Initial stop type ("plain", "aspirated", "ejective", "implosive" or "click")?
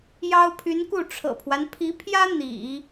aspirated